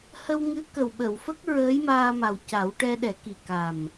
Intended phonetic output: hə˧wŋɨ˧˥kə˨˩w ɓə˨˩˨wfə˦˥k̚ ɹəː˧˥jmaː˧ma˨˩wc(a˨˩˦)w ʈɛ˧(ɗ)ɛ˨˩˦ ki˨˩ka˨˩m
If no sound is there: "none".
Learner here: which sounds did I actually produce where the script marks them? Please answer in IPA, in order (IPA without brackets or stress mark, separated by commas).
a˨˩˦, ɗ